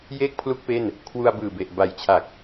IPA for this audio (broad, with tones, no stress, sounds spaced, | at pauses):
j eː˥˩ k̚ pʰ l u˥˩ k̚ p e˥˩ n | kʰ w u˧ a̯ b ɯː˨˩ b e˨˩ ʔ b a˨˩ j t͡ɕʰ a˨˩ k̚